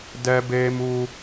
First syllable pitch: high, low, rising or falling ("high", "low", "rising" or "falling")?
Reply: high